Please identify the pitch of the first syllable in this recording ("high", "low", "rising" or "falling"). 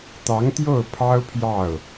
rising